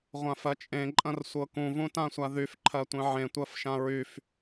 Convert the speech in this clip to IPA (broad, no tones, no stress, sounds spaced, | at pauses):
ʁʷ ã f ɜ t͡ʃʼ ẽ ǃʼ ɐ̃ r sʷ ɤ k ũ v ũ t ã sʷ a ð y f ǃʰ ɜ tʷ ẽ ʕ ẽ tʷ ɜ f ʃ ã ɹ y f